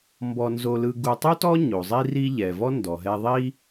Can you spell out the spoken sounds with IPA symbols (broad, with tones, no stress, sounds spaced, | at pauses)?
m b ɔ˧ n z o˧ l ɯ˧ ɡ u˧ tˤ u˥ t ɔ˥ ɲ o˩ zˤ i˥ r i˥ ʎ ɛ˩ v ɔ˥ n d ɔ˩ ɦ ɛ˧ ðˤ i˥